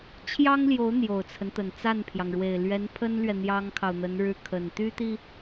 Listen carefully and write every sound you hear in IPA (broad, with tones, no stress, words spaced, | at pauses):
t͡ɕʰjɑ˥ŋljo˧˥ʊ̯ n̪jo˨˩ʊ̯t͡sʰə˦nt̪ə˨˩n t͡sa˥˩npʰjɑ˩ŋɻwe˨˩ɪ̯ lɥɛ˧˥npʰə˥nlɥɛ˨ n̪jɑ˥ŋkʰɑ˨ʊ̯n̪ə˧˥n ɻɻ̩˥˩kʰə˨˩n t̪y˥t̪i˨